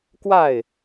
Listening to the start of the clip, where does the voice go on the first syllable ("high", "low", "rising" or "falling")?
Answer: falling